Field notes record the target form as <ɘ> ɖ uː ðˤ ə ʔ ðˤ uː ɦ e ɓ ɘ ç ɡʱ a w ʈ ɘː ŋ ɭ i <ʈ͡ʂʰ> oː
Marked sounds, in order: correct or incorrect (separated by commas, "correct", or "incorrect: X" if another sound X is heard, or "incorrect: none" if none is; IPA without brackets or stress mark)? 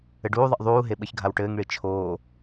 correct, incorrect: t͡ʃʰ